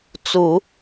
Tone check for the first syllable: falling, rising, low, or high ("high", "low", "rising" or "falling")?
low